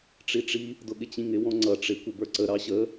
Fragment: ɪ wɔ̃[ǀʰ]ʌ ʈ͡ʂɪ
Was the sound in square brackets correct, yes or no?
no